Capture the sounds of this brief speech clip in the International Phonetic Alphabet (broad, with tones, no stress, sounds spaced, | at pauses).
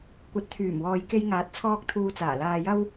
kʷ ɐ˨˥ t̚ t̪ʰ yː˨˩ m w ɔː˨ j k e˧ j ŋ aː˨˥ t̚ t͡sʰ ɔː˧ k̚ t̪ʰ uː˧ t͡s aː˨˩ l aː˧ j ɐ˥ w